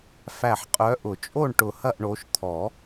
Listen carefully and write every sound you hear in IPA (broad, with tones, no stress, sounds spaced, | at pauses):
f æ˧˩ ħ qʼ œ˨˦ ʔ ʊ˨˩˦ t͡ʃʼ o˥˨ ɳ ʈ ʊ˧˩ h ɐ˥˨ ʔ ɳ o˨˦ ʃ t̪ʰ ɔ˨˩˦